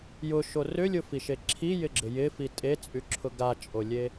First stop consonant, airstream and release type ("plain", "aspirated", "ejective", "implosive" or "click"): click